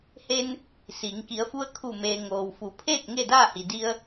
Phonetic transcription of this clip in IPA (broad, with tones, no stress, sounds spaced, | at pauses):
h e˧ n | s iː˩˧ ŋ k i˩˧ ə̯ f u˧ ə̯ kʰ u˧˩ m eː˩ ŋ oː˩ w f u˩˧ pʰ eː˥˨ k̚ ŋ e˥˨ d aː˥˨ h i˩ d i˧ ə̯